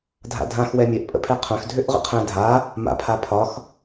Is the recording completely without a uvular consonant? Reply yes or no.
no